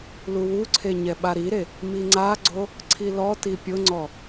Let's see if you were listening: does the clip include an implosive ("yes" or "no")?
yes